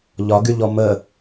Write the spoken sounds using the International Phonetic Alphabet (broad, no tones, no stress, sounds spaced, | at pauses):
ʎ ɒ ɡ y ʎ ɔ m ə